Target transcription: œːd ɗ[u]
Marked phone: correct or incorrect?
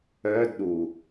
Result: correct